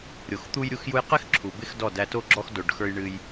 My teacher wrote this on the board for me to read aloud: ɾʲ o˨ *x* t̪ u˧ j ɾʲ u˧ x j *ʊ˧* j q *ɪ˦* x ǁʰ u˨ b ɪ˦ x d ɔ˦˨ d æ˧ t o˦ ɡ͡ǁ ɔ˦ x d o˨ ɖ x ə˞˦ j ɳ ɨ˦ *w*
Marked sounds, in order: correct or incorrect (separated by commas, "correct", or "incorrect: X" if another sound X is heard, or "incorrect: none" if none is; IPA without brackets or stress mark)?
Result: correct, incorrect: u˧, correct, incorrect: j